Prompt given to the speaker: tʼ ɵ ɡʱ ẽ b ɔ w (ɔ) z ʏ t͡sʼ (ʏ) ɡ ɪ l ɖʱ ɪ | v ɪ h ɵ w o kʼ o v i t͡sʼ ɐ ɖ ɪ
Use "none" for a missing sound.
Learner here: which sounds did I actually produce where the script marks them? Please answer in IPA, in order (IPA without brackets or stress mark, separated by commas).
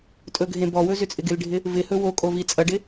ɵ, ɪ